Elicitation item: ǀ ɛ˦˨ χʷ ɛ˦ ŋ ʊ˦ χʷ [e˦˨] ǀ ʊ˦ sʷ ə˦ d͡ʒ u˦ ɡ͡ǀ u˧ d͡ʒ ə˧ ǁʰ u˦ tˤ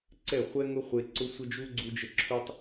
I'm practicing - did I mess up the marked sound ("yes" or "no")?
yes